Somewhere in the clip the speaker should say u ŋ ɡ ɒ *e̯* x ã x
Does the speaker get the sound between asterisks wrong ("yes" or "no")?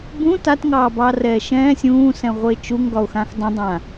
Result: yes